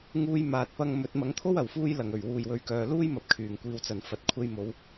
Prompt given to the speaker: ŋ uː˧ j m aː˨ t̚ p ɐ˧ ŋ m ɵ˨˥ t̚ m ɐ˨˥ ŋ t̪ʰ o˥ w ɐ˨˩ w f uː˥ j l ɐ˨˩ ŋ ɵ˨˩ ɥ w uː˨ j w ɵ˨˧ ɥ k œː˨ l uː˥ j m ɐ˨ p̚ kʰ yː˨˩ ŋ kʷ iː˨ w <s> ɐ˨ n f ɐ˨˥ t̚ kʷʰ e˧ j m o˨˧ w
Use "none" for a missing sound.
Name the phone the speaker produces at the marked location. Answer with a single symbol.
t͡s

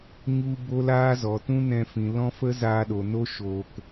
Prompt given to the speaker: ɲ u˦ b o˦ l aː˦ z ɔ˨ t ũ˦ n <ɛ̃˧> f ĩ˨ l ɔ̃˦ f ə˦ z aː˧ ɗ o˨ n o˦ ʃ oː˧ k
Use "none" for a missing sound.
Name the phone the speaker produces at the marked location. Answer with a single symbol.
ɛ̃˧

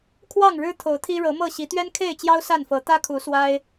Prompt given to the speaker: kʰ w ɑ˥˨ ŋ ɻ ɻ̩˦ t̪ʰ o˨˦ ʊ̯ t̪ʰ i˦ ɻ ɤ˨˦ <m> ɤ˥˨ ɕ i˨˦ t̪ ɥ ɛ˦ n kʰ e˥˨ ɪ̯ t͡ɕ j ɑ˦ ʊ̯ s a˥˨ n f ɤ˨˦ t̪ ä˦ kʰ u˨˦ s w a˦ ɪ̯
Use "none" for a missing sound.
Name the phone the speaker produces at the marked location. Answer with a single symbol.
m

